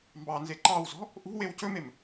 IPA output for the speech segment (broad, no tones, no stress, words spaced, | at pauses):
mbɑnze ǃɑwzɔ̤ | ʔṳ wewcɵmem